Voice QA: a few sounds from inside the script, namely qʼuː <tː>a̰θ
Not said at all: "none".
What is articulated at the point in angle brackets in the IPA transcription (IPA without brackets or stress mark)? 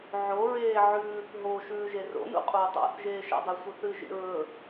tˤ